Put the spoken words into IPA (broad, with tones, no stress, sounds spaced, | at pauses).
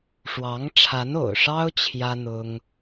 ʂ w ɑ˧˥ ŋ ʈ͡ʂʰ a˧˥ n o̰˨˩ ʊ̯ ʂ ɑ˥ ʊ̯ t͡ɕʰ j ä˥ n̪ ʊ˥ ŋ